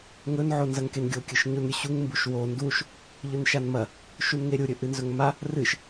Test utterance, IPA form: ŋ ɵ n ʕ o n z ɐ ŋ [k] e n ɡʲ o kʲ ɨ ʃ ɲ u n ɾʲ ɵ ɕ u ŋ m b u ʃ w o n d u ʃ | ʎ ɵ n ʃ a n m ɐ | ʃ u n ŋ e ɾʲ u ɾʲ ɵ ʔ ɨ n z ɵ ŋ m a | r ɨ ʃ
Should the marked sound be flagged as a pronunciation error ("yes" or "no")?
no